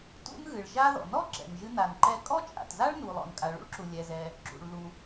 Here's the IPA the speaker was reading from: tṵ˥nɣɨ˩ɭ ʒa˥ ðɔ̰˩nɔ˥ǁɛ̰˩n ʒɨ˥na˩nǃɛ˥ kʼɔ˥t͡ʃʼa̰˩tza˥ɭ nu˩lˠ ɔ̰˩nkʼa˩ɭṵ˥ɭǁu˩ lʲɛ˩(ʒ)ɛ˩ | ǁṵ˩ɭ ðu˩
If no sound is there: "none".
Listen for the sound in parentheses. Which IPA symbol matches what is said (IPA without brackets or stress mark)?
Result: z